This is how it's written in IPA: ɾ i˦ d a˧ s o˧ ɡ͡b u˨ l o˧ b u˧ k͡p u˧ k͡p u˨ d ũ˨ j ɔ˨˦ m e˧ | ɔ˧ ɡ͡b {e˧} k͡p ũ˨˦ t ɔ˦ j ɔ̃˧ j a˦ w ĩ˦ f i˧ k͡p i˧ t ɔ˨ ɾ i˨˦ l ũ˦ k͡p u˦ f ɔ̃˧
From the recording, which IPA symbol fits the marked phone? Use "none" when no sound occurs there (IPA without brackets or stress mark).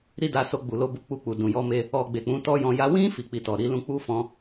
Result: e˨